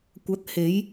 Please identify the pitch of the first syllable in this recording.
rising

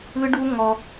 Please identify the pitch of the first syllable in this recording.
high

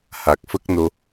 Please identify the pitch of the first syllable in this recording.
low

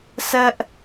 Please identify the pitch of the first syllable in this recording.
high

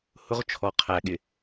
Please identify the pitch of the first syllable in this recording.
high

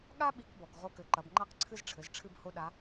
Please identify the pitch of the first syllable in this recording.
high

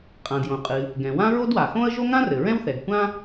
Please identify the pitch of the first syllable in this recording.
low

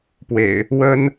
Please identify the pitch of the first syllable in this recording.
low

